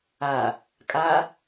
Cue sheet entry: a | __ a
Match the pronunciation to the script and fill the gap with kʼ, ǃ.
kʼ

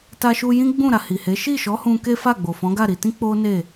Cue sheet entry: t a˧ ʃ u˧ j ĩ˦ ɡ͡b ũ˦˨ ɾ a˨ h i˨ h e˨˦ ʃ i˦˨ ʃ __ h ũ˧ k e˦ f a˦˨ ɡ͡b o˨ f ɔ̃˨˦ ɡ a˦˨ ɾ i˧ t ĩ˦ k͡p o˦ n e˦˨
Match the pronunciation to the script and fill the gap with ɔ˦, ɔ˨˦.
ɔ˨˦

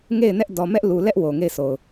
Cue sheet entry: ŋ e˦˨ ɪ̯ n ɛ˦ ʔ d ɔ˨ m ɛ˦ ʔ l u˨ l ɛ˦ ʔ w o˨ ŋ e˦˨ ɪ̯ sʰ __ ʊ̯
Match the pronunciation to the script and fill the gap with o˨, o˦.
o˨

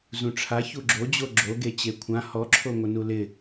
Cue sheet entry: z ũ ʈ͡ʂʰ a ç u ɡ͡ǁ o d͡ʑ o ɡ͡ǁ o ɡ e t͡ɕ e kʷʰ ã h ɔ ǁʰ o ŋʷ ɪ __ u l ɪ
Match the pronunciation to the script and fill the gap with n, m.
n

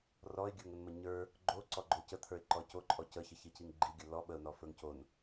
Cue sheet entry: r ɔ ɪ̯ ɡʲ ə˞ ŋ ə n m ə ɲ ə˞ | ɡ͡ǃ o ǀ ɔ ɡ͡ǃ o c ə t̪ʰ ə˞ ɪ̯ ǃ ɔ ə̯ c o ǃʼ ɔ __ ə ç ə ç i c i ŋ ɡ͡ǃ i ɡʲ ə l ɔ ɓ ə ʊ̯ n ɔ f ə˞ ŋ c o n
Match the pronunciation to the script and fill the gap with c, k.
c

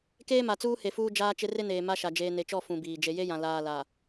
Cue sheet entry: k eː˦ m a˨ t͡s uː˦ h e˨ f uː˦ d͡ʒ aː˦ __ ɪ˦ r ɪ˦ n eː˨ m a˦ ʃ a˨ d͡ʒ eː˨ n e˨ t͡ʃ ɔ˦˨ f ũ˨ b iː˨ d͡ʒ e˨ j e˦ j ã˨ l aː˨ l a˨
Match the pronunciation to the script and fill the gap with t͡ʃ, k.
t͡ʃ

